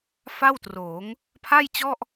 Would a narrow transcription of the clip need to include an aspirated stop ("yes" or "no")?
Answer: yes